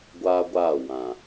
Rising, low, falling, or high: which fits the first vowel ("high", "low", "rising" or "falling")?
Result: high